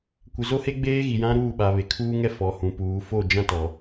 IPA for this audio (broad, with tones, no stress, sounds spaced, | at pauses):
kʷ ɪ˨ z o˦ h e˦ ɡ͡b eː˦ ɣ i˨ j ã˦ ɾ uː˦˨ ɓ a˨ β e˨ kʰ uː˦ ŋ ɛ˦ f ɔ˨ h ũ˨ p uː˨ f o˦˨ d͡ʒ ã˦ t ɔ˨